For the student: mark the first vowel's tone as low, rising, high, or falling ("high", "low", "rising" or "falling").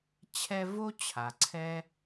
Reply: high